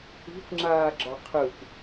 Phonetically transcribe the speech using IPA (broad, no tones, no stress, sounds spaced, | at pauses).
i̤ kʷ ŋ͡ǁ aː ɡ͡ǁ ɒ qʰ ɯ kʷ